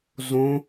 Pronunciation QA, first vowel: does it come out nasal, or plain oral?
nasal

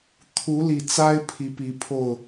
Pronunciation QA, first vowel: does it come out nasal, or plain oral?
oral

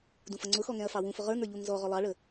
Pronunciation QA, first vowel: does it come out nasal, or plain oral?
nasal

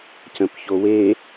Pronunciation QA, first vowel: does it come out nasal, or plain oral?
nasal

